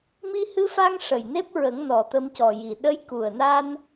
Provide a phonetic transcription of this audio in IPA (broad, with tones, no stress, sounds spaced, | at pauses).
m i˧ h ɨ˧ f a˧ ŋ ʂ ə˨˩ j n e˦˥ p̚ ɹ ə˨˩˦ ŋ n ɔ˨˩ t̪ ə˧ m c ɔ˨˩ j i˨˩ ɗ ə˧˥ j k u˨˩ ə̯ n a˧ n